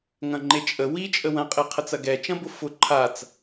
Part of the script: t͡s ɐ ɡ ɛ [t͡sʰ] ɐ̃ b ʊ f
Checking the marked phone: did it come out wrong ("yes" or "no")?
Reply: yes